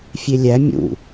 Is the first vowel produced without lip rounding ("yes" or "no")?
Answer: yes